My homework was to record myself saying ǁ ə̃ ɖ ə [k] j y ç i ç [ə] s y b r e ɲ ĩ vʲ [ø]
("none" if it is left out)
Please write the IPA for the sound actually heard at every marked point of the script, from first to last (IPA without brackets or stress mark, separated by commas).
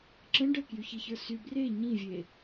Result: k, ə˞, e